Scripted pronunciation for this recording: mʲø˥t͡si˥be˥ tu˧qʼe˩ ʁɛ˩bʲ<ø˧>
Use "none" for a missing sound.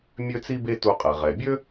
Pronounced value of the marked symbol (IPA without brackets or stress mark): ø˥